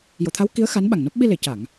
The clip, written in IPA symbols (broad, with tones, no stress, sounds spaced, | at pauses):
j o˨˩˨ t̪ʰ a˧˥ w k i˧˥ ə̯ x a˧˥ n ɓ a˨˩ ŋ n o˦˥ p̚ ɓ i˧ l e˨˩˨ c a˨˩˨ ŋ